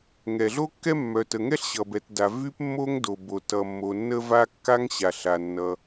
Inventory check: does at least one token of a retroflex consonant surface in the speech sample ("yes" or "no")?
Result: no